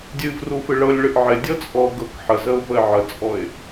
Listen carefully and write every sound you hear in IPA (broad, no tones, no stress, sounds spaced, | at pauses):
dʲ ɨ v r u f ɨ ɭ ɤ lʲ ɭ ɨ ʔ ʕ ɪ dʲ ɤ t͡sʼ ɔ ɡ ɤ k ħ ə z ə ʊ̯ v ə ɪ̯ ʕ ə t͡sʼ ɔ ɪ̯